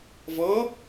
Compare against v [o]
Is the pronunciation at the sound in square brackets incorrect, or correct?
incorrect